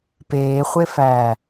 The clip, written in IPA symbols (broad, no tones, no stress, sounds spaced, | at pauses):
p eː χʷ e f æː